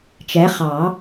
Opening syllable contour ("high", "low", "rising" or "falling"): rising